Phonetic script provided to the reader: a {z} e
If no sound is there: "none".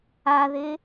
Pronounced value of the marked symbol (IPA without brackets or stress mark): ð